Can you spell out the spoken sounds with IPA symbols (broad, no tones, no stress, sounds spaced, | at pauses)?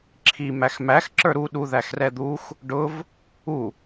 ǁʰ i m æ x m æ x ǁ ə˞ ɾ u ɗ u ð æ x r ɛ d̪ u x | ɖ ʊ v | u